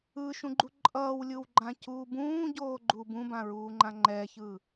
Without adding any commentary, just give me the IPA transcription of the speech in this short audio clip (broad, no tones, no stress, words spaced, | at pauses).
ɯʃũɡ͡ǃu ǃʼʌːwlʲɯwɡ͡ǃãcuː bũːɟoːɡ͡ǃu bũbãɹuːŋ͡ǃã ŋ͡ǃɛçɯ